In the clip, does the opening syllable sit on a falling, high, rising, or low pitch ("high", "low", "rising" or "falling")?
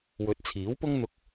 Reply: rising